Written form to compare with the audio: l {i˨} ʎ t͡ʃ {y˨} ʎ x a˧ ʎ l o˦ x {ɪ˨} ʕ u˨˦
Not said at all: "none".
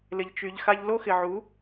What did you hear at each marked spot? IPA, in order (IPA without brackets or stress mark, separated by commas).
ɪ˨, y˨, ɪ˨